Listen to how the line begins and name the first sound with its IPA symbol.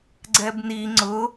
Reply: ɡ͡ǀ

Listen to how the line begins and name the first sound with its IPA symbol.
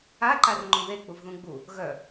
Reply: a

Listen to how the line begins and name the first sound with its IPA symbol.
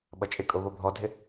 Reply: ɓ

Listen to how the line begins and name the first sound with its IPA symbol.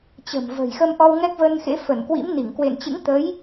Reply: t͡ɕ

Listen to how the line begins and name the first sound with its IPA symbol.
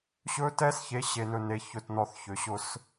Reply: ɕ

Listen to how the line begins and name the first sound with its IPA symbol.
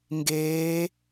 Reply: ŋ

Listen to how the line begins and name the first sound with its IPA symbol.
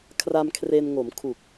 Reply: kʰ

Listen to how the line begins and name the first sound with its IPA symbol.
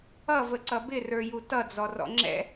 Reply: ʌ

